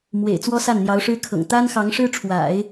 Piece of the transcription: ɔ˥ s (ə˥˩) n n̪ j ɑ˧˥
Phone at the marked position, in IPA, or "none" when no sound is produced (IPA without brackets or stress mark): a˥˩